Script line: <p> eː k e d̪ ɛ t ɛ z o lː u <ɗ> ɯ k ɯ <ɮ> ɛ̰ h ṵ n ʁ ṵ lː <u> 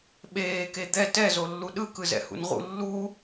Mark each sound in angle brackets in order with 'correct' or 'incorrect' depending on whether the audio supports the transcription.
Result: incorrect, correct, incorrect, correct

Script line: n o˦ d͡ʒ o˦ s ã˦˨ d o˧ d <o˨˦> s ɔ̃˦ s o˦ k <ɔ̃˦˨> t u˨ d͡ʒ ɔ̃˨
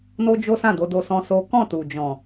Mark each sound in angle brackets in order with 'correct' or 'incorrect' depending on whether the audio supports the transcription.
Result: incorrect, correct

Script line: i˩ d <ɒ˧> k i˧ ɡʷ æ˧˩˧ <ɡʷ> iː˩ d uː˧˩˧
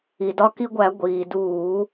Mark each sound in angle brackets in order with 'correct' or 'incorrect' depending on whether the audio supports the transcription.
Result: correct, correct

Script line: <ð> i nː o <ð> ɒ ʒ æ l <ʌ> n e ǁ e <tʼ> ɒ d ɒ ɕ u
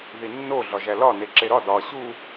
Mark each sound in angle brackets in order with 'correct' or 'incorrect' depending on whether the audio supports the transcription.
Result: correct, incorrect, incorrect, incorrect

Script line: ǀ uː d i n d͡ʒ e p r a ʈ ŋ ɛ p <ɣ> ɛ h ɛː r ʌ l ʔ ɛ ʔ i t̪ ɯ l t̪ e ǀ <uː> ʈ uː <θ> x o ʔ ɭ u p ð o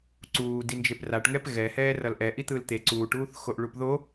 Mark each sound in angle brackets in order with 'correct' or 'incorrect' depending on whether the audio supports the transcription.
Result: correct, correct, correct

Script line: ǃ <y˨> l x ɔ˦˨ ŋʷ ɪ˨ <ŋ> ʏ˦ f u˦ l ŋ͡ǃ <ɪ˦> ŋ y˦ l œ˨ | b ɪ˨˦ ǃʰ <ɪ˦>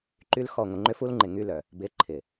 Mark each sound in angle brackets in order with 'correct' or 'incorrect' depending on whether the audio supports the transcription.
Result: incorrect, incorrect, incorrect, incorrect

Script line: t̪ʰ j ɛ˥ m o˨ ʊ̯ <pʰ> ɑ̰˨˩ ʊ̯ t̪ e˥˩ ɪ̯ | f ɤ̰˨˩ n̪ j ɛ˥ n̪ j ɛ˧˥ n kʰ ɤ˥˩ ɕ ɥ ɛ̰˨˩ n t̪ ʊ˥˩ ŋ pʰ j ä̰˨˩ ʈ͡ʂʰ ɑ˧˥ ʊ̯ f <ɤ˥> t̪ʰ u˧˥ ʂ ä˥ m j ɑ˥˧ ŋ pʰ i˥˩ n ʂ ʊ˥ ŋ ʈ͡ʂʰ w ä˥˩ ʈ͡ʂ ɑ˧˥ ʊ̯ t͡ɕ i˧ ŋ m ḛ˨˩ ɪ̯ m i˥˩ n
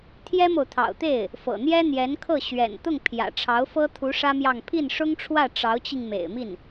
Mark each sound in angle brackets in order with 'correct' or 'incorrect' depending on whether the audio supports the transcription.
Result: incorrect, correct

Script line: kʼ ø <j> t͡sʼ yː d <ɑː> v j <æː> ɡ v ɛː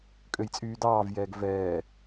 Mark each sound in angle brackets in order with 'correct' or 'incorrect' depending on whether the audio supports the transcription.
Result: correct, correct, incorrect

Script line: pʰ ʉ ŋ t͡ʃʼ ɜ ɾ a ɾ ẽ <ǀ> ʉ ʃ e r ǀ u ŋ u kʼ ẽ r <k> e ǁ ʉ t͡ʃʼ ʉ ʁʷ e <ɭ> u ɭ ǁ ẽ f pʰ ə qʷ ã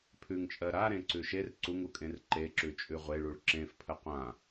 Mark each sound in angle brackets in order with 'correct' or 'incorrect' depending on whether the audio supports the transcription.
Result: correct, incorrect, correct

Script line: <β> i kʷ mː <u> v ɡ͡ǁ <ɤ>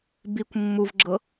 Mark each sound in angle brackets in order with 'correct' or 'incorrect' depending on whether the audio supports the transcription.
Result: incorrect, correct, correct

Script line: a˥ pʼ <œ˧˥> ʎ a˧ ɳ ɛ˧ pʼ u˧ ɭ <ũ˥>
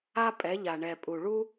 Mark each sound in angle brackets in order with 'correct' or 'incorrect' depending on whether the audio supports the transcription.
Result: incorrect, incorrect

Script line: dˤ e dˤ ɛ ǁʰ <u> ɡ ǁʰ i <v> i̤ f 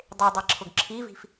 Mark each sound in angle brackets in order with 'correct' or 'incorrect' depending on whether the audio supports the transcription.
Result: incorrect, correct

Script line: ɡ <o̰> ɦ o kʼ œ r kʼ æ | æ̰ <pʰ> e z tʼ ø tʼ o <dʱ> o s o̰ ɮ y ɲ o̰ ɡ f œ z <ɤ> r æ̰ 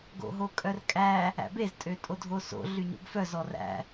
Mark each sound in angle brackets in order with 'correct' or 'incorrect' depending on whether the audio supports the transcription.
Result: correct, incorrect, correct, incorrect

